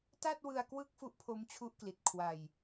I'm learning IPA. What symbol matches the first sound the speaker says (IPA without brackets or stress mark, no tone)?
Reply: t